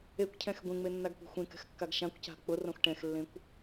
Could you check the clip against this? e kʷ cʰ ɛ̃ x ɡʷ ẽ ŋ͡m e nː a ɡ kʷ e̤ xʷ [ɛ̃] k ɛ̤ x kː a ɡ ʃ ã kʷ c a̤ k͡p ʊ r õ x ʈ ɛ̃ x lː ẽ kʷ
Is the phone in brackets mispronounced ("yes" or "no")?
yes